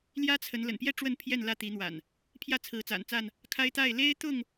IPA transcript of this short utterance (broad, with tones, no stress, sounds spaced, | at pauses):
l j ä˦ t͡sʰ ə˨˦ n l ə̰˨˩ n p j ɛ˥˨ ʈ͡ʂ w ə˥˨ n pʰ j ɛ˥˨ n l ä˥˨ t̪ i˨˦ n̪ w a̰˨˩ n | pʰ j ä˥˨ t͡sʰ ɹ̩˨˦ t͡s a̰˨˩ n t͡s a˥˨ n | kʰ a˦ ɪ̯ t̪ a˥˨ ɪ̯ l e˦ ɪ̯ t̪ ʊ˥˨ ŋ